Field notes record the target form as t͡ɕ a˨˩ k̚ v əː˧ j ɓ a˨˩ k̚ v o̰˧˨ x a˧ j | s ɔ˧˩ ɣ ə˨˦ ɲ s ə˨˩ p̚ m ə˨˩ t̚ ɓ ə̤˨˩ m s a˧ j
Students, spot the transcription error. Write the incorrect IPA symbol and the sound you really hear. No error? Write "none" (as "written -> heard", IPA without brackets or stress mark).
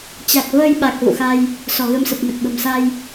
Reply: ɲ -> m